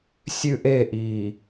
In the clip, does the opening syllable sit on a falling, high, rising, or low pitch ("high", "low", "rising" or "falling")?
high